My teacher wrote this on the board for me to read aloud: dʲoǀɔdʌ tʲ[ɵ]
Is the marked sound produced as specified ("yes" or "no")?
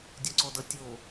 no